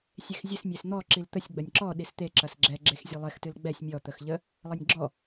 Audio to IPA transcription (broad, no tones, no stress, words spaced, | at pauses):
sʲexzʲɨs mʲesn̪ɔ ǁilt̪əsʲ ɡ͡bɐnʲǁɔ ɗist̪e ǁɐsɡ͡ǁɛ ɡ͡ǁexzʲelˠex tɨlɡ͡bɛsʲ mʲɔ t̪əxʎə | lˠənʲɡ͡ǁɔ